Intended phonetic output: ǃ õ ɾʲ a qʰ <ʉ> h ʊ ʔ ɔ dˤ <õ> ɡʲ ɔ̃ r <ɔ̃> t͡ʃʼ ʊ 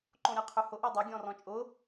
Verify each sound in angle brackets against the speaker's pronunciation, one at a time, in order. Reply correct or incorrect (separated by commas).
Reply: correct, incorrect, correct